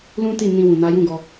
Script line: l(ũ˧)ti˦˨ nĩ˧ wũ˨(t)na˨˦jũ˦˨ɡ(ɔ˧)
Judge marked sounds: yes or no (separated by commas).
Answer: no, no, yes